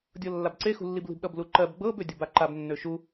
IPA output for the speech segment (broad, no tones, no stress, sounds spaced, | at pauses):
dʲ ɤ lː a b ǀ e x ṳ lː i b l i̤ b ɗ ʌ b l u ǃ ɜ b ɡ͡b ɤ b ø dʲ ʌ b a ǃ a b nː ø ʃ u